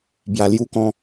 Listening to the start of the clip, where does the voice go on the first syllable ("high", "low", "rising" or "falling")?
low